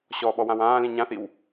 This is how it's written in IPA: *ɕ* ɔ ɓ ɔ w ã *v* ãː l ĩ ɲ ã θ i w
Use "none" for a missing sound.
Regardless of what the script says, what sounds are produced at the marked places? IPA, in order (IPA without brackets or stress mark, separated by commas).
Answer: ɕ, w